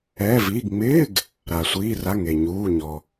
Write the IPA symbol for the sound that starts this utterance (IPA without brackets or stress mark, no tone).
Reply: ɛː